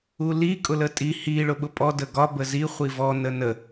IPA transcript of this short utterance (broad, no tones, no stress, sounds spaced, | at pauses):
u l i kʼ ʊ l ə tʼ i h i ɭ ʊ ɓ ʊ pʼ ɔ d ə ɡ ɒ b ə z i χʷ i v ɔ n ə n ə